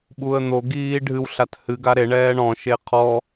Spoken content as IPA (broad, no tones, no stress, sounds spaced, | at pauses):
ɓ u ə̯ n̪ o ɡ iː ɖʱ ɨ w ɬ a t h ɨ ɡ a ɾ e ɳ ɛː ɳ ɔ̃ ʃ e qʰ ɔ